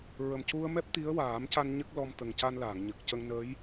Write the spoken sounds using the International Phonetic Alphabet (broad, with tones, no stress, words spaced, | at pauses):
ɹə˨˩mcu˧ə̯ mɛ˦˥p̚t̪i˧˥ə̯waː˨˩˦mca˧n ɲə˦˥k̚lɔ˧m t̪ə˨˩ŋca˧nlaː˨˩˨ŋ ɲə˨˩k̚cə˧ŋ nəː˧˥j